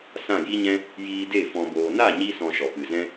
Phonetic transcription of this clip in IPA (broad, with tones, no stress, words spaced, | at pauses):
sã˦˨ji˦ɲɛ̃˦ | jiː˧de˦˨ fɔ̃˨boː˨na˦˨ ɲi˦ sɔ̃˧ʃɔ˨pɨ˨zɛ̃˦